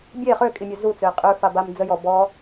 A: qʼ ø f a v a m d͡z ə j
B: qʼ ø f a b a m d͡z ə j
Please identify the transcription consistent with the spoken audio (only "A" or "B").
B